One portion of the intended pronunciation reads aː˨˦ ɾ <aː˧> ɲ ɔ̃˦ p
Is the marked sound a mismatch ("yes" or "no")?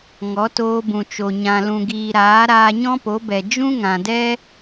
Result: no